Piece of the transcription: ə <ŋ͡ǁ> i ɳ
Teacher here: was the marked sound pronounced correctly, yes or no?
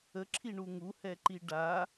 no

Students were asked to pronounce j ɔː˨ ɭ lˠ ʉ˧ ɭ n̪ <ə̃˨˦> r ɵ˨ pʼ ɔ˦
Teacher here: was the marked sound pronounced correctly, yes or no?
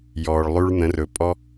yes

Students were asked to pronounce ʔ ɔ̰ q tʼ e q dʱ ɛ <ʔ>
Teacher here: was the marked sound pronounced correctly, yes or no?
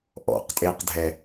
no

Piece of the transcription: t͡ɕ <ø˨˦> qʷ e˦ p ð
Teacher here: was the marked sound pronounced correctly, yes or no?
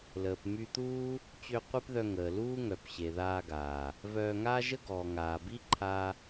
no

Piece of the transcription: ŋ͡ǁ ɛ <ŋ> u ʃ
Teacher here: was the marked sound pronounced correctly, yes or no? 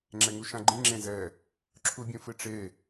yes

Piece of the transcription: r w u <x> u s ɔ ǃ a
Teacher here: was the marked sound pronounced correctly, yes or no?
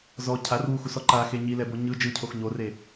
yes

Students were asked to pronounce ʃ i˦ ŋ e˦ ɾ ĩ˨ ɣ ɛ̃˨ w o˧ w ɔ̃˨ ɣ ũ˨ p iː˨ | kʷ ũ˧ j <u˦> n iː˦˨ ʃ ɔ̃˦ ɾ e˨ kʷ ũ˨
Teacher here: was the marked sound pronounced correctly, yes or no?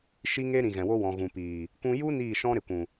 yes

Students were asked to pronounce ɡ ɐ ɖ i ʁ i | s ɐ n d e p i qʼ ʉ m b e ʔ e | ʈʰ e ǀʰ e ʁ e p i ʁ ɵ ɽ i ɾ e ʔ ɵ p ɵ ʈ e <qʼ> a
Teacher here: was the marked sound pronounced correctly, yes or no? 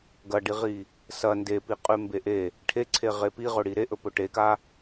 no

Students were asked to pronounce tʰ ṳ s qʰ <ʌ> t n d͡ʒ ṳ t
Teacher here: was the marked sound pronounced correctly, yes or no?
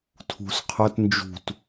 yes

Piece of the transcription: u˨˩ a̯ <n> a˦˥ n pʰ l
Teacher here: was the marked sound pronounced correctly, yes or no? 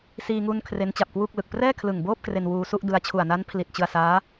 yes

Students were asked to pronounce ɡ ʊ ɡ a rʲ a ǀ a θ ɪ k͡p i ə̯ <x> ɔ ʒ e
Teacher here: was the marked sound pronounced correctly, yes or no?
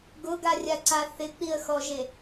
yes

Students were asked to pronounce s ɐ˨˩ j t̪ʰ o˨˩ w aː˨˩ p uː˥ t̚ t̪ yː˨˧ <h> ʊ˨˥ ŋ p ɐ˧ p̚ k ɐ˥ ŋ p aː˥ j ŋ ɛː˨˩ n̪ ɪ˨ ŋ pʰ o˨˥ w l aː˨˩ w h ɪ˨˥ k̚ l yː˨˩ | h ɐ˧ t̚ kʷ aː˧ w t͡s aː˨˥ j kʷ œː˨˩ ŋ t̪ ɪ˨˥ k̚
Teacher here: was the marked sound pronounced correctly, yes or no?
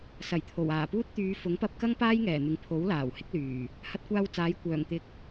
no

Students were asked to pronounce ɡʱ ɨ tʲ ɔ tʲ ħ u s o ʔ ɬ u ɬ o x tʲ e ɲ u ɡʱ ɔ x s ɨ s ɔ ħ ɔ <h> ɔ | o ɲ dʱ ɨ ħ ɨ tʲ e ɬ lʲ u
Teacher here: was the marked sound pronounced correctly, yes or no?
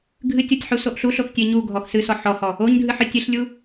yes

